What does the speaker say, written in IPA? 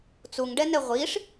t͡s u ŋ ɖ ɛ n ɛ ʁʷ i ʂ

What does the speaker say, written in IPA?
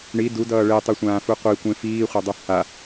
ɳ i d u d ʌː ɭ e tˤ i sʷ ãː f u qʷ i kʷ ẽ f iː χʷ ɛ dˤ u h a

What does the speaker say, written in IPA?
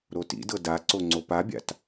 ɾ o t ḭ d ɤ d a ǀ o ŋ͡ǀ o p a bʲ a̰ t

